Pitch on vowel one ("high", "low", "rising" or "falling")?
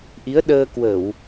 rising